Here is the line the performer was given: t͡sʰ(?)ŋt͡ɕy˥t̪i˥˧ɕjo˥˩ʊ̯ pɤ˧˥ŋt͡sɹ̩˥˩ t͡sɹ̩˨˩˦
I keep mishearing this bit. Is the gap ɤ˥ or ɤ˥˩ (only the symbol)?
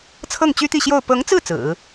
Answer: ɤ˥˩